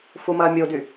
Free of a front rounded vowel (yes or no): no